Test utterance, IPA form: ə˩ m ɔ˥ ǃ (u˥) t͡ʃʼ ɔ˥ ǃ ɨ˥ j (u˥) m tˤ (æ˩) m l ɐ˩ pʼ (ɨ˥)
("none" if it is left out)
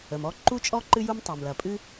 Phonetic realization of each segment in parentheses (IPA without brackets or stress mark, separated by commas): u˥, u˥, a˩, ɨ˥